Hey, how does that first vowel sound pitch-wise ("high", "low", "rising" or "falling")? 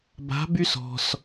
rising